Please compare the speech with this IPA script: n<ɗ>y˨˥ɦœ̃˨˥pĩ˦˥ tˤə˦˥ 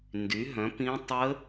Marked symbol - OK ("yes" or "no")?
no